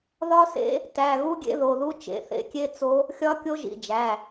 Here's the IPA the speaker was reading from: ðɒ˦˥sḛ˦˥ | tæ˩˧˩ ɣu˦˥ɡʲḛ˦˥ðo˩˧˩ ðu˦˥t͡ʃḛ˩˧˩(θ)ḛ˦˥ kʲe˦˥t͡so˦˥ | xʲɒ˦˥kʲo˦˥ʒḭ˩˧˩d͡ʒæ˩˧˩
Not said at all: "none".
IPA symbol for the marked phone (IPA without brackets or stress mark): θ